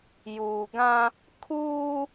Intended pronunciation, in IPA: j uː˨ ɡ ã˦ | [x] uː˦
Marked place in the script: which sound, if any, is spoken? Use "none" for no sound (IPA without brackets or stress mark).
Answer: kʰ